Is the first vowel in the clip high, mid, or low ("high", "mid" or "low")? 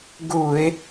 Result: high